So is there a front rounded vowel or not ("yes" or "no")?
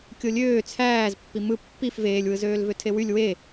yes